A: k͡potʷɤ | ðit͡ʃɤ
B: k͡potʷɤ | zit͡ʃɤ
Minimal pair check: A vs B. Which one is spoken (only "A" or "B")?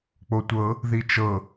A